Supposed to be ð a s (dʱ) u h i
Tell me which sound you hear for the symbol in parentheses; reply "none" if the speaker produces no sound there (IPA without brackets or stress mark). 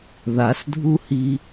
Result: dʱ